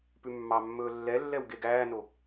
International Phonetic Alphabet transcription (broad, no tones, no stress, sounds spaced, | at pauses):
p ʉ mː ɑ mː ɵː lː ɛ lː ɛ w ɡ e ɡ æː n o